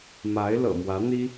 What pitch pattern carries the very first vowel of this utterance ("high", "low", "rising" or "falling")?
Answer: rising